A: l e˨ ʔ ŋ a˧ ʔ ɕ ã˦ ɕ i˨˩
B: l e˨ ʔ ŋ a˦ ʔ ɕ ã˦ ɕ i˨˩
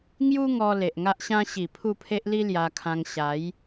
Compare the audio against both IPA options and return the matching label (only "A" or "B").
B